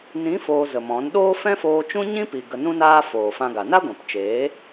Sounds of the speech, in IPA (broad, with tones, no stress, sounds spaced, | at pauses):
n ĩ˨˦ f oː˧ z ə˨ m ɔ̃˨˦ n ɗ oː˦ f ɛ̃˦ f oː˧ t͡ʃ ũ˦ ɲ ĩ˦ p i˨ ɡ ə˨ n ũ˧ n aː˧ f oː˨ f ã˧ ɡ a˨ n a˦ ɡʷ ɛ̃˨ p t͡ʃ eː˨˦